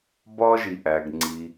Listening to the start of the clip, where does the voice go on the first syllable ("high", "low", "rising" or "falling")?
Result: high